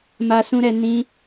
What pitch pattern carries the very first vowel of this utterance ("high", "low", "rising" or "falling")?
high